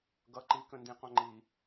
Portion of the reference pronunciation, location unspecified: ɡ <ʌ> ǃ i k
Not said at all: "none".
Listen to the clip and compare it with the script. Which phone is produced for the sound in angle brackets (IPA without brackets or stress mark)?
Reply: ʌ